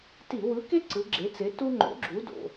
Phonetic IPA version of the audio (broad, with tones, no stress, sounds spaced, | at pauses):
t i˧˩˧ w ɯ˨˥ k e˥ ǀ ɯ˨˥ ɡ͡ǁ e˨˥ t͡s e˨˥ t u˥ ŋ͡ǃ o̰˨˥ ɡ͡ǁ u˨˥ d o̰˩˧˩